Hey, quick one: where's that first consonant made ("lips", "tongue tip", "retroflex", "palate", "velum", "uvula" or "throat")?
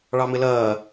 retroflex